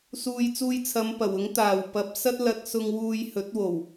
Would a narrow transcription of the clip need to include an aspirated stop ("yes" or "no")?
yes